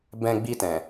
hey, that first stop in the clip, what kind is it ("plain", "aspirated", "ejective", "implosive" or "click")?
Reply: plain